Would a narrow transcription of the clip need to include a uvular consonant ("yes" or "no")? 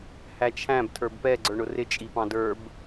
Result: no